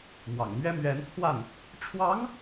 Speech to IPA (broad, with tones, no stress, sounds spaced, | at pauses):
m w ɑ̰˨˩ ŋ m ɥ ɛ˥ m ɥ ɛ˧˥ n t͡sʰ w a˥˩ n | ʈ͡ʂʰ w ɑ˧˥ ŋ